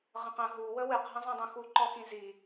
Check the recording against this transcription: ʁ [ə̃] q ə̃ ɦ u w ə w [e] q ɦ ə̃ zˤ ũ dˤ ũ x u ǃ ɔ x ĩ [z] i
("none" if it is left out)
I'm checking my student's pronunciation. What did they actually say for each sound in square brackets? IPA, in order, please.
ə̃, ɨ, z

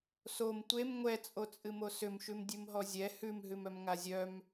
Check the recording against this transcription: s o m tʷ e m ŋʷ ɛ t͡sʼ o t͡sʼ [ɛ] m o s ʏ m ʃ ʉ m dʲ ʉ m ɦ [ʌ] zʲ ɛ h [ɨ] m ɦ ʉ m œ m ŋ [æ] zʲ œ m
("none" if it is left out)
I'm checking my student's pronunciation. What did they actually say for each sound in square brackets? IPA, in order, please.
ɨ, ɔ, ʉ, a

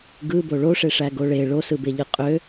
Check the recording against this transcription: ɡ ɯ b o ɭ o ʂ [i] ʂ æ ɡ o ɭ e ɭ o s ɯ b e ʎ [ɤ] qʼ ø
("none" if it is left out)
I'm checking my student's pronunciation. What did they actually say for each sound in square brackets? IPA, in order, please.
e, ɯ

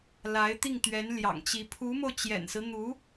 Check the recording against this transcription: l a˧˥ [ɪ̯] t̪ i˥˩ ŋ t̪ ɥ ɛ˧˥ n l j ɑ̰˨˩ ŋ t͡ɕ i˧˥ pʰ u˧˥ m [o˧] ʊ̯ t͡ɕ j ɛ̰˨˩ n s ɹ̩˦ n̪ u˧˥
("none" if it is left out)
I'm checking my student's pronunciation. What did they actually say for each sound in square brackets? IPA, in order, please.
ɪ̯, o˧

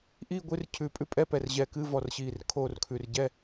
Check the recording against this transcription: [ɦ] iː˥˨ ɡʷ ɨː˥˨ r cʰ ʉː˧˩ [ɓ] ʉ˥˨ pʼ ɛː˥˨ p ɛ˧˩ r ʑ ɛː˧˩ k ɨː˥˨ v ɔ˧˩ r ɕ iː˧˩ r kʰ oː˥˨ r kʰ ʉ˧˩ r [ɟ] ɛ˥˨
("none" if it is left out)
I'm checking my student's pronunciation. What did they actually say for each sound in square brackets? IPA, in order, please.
ʔ, pʼ, ɟ

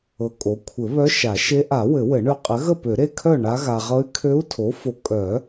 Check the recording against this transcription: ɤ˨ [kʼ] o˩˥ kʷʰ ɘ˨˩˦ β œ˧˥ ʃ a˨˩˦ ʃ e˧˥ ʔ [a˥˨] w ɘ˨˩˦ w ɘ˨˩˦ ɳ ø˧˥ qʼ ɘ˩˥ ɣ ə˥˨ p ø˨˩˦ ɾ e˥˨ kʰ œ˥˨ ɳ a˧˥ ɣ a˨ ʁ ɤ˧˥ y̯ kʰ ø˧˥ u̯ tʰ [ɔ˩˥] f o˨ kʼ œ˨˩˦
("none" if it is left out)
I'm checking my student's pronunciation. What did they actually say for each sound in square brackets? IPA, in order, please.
kʼ, a˨˩˦, o˩˥

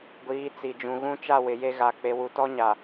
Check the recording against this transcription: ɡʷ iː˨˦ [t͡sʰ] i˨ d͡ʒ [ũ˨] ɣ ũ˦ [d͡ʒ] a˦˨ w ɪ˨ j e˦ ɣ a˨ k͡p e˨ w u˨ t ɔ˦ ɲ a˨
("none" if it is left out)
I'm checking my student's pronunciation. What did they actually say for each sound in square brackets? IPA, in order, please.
t͡s, ũ˨, t͡ʃ

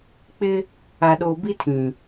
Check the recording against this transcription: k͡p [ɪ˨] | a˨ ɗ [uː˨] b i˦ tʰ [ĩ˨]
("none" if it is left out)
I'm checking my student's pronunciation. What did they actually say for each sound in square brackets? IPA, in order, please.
ɪ˦, oː˨, ĩ˨

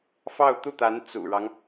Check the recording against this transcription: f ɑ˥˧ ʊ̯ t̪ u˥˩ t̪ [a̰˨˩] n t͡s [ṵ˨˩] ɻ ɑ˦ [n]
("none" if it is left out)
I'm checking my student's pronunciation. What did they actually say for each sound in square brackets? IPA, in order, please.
a˧˥, ṵ˨˩, ŋ

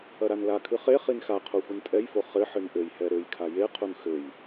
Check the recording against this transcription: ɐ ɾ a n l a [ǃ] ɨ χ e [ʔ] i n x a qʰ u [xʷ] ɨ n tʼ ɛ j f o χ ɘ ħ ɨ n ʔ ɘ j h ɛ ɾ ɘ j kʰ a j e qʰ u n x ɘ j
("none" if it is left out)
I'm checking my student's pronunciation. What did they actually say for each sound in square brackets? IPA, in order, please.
kʰ, χ, xʷ

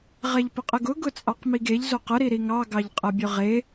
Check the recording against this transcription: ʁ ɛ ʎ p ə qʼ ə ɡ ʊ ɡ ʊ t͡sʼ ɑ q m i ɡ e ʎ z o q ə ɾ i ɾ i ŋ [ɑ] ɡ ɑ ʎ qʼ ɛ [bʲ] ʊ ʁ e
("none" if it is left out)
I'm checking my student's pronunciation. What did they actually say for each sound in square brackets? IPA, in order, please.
ɑ, bʲ

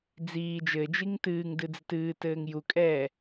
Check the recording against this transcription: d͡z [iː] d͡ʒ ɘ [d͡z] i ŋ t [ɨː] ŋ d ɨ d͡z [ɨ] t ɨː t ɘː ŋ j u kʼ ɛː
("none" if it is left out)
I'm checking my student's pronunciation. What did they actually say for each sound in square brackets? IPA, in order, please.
iː, d͡ʒ, ɨː, ɨ

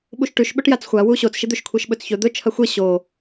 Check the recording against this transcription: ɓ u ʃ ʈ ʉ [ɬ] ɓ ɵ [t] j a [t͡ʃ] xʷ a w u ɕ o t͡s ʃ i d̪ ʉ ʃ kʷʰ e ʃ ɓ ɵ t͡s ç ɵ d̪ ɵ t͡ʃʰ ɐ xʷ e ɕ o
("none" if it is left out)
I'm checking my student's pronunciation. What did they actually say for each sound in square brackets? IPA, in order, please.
ʃ, ʈ, t͡s

